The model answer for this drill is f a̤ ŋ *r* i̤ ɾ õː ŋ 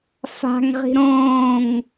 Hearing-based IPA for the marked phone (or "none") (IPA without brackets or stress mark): ʁ